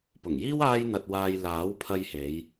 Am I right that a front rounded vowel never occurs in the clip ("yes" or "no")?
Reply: yes